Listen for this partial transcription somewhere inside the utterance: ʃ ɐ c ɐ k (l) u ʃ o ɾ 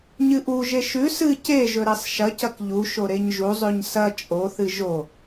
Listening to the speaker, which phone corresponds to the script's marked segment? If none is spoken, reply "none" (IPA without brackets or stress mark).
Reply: ʎ